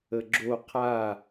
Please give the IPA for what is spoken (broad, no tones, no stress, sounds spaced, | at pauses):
ə ɡ͡ǁ o qʰ a